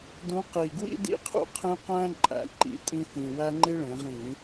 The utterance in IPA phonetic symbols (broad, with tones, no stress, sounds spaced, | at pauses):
d ũ˨˥ q i˨˩ ɡ w ḭ˦ d ḭ˦˨ qʰ ṵ˦˨ qʰ ẽ˦ q æ̃˦ ǃʼ æ̰˩˧ ǃ ḭ˨˥ tʼ ĩ˦ f ĩ˨˩ w æ˦ ŋ͡ǃ i˦ ɭ ẽ˩˧ ʁ ĩ˧˩˧